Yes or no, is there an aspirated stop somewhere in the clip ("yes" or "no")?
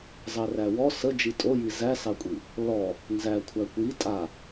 yes